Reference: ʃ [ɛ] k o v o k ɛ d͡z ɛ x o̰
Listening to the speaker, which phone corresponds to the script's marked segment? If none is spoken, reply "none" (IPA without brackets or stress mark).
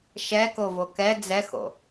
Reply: ɛ